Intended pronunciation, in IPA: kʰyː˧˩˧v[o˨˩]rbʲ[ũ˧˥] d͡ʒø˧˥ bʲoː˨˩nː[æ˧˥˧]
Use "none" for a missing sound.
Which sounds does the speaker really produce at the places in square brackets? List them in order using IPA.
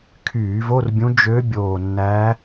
o˧˥˧, ũ˧˥, æ˧˥

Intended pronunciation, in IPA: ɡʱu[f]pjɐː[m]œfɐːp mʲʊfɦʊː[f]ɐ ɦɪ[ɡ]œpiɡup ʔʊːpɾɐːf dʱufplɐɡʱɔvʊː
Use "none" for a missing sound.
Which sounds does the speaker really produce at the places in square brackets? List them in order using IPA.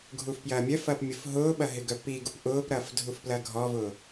f, mʲ, ɓ, ɡ

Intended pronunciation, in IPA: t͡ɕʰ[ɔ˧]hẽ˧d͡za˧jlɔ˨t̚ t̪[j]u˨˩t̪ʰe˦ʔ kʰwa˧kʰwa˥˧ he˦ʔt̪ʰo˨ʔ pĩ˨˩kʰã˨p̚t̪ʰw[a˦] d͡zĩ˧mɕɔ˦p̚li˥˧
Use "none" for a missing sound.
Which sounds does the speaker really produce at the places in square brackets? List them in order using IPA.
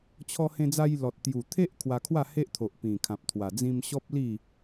ɔ˧, j, a˨˩

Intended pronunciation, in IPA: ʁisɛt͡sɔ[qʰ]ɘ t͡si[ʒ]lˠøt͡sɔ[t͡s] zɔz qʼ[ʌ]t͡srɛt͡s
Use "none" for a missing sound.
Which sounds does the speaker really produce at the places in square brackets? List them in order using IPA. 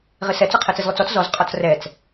qʰ, z, t͡s, ɔ

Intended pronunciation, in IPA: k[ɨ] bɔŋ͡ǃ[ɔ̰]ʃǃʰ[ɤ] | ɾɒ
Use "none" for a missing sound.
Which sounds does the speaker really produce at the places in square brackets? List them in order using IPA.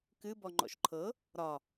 ɨ, ɔ̰, ɤ

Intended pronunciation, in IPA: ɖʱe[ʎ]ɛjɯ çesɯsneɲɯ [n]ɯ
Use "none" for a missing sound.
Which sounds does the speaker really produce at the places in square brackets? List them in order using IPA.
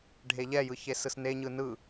ʎ, n

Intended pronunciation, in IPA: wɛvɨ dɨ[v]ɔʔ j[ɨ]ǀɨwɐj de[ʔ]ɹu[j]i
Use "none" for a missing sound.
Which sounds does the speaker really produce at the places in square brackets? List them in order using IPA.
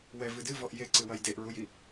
v, e, ʔ, j

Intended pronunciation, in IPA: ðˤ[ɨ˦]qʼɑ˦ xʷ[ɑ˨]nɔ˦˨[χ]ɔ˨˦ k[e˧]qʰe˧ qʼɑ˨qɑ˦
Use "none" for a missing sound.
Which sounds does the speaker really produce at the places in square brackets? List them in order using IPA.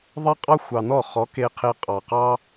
ɛ˦, ɑ˨, χ, e˧

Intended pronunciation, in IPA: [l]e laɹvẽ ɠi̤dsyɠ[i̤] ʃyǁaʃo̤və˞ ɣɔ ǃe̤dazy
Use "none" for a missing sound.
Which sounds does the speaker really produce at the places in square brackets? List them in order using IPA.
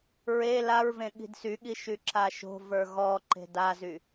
ɹ, i

